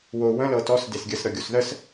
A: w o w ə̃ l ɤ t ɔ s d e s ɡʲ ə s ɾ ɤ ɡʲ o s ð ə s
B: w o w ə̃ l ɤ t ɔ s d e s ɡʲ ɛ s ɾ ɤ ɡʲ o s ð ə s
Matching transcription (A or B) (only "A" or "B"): A